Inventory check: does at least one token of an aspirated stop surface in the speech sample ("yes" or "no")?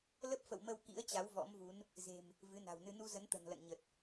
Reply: no